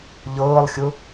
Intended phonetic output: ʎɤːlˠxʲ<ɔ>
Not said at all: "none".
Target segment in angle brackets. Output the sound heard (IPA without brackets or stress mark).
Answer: ʊ